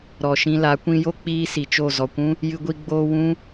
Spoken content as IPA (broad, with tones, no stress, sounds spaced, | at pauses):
ɾ ɔ˨ ʃ ĩ˧ l a˨˦ kʷ ĩ˧ j o˦ k͡p iː˦ s i˨ t͡ʃ o˦˨ z ɔ˨ kʷ ũ˦ | j ɨ˧ ɡʷ i˧ ɡ͡b oː˧ w ũ˦